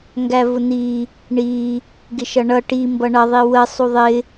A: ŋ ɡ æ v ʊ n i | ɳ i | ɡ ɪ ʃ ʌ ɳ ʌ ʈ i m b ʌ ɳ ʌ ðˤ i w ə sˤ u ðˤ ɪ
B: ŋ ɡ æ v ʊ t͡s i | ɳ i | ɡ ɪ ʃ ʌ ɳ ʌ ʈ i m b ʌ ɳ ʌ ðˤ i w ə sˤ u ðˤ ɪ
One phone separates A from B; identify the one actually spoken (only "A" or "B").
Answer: A